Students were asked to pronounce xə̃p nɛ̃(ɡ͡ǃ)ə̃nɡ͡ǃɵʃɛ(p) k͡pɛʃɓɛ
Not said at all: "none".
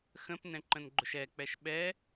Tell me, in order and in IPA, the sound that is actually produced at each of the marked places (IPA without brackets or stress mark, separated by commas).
ǃ, none